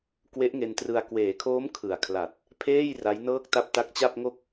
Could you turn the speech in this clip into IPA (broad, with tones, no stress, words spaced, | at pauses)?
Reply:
kwe˦˥ʔŋe˧ntrɯ˧a̯ kweː˩˦kʰoː˦˥m kʰɯ˨˩a̯kʰla˨˩t̚ | pʰeː˥˩j ra˦˥jnɤː˥˩k̚ta˥˩p̚ ta˦˥k̚t͡ɕa˥˩p̚ŋo˥˩k̚